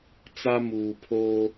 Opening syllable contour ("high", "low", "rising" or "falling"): high